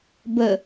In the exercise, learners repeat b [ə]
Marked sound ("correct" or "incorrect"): correct